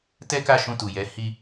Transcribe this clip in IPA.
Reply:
tɛ˦ka˦˨ ʃũ˧tu˨jɛ˨˦ hi˦

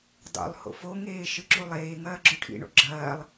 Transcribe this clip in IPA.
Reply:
dˤo̰lˠho̰ foŋeː ʃɨǁulˠeːŋɐː ɡ͡ǁɵʈʰḭɳo̰ ɡ͡ǁɐːlˠ

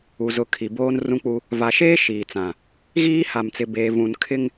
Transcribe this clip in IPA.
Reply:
u˨zʊ˨˦kʰi˨ boː˦n rũ˦k͡pu˦ | va˨ʃeː˦ ʃiː˨t͡sã˨ | ɣiː˦ha˨mt͡sɪ˨ beː˨vũ˨n kʰɪ˦ŋ

